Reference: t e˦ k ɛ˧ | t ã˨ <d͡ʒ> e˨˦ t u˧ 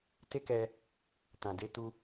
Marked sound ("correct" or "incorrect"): incorrect